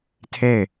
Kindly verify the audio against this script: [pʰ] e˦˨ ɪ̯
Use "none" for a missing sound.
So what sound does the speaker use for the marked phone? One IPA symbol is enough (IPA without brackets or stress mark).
tʰ